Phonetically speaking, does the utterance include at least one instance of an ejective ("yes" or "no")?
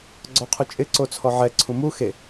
yes